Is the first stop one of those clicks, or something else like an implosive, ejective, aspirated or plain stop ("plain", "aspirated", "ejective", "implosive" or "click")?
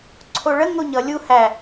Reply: click